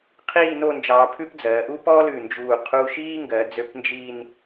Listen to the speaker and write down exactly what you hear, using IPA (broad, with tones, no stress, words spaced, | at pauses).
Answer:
qʰiː˥˧no˥˧nd͡ʒɑː˧ pʰʉ˥pd͡zɜː˩˧ ʔu˥pɔː˥lʉ˧˩ nd͡ʒuː˧˩ qʰuː˧ʃiː˥ŋɡɜ˩˧d͡zø˧p nd͡ʒiː˥˧n